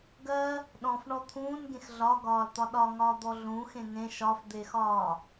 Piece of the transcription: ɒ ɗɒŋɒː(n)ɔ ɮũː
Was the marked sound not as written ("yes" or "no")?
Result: yes